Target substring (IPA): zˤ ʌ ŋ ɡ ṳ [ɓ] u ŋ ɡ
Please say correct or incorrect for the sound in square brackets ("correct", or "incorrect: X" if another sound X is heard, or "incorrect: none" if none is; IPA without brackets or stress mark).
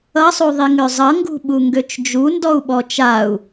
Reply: correct